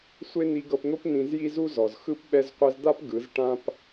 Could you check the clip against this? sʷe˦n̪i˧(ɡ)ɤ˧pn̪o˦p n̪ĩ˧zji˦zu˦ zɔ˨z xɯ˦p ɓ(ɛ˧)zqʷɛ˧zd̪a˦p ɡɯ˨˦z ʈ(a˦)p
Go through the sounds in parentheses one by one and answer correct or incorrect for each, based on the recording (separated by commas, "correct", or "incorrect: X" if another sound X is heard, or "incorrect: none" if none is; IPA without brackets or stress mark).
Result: correct, correct, incorrect: ã˦